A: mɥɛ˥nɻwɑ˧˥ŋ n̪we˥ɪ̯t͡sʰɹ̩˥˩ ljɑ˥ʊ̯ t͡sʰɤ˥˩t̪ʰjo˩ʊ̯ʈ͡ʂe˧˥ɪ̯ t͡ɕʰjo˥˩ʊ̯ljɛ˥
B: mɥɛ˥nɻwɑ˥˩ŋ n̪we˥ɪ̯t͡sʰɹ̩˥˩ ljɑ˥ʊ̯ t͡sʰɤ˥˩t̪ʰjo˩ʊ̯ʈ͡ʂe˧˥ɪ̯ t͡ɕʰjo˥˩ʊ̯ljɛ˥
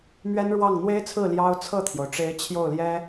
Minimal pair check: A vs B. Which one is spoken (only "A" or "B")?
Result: B